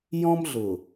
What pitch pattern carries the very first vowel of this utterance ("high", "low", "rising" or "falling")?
high